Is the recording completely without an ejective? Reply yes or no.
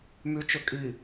no